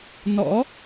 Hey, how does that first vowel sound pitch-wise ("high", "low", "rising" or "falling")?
rising